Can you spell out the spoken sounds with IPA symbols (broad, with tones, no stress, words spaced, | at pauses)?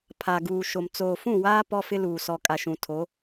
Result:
pʰa˨ɡuː˨ʃo˨m t͡soː˨fũ˦˨waː˦ pɔ˦fɪ˦luː˨ sɔ˨kʼa˨ ʃũ˨tʰo˨˦